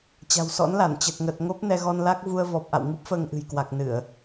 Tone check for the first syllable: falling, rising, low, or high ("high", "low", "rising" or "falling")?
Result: low